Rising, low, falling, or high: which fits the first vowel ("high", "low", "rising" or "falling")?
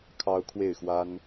high